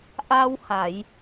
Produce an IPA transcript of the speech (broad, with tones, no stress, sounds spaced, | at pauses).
ʔ a˧ w h a˨˩˨ j